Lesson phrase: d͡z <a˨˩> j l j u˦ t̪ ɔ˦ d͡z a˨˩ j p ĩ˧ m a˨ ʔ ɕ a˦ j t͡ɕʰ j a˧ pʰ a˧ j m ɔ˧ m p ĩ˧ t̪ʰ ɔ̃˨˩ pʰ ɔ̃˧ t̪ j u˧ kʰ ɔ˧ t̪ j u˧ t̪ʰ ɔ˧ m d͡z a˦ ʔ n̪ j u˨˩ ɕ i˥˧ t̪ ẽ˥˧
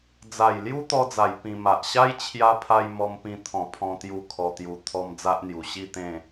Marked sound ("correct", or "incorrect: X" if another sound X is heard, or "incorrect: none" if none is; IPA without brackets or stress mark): correct